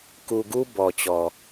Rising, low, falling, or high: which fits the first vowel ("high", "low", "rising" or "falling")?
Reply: low